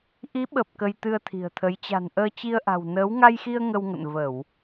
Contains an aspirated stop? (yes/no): yes